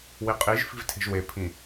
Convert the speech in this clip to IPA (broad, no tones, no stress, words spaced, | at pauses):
wiqʼiʒ fi̤vtʰe̤ʒwe pʰĩ